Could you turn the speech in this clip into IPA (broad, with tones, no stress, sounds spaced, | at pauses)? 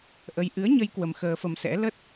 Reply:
ʔ ə˧ j ʔ ɨ˨˦ ə̯ ɲ ə˧ j k w ə˧ m x əː˧ f ə˧ m s ɛ̰˧˥ l ə˦˥ t̚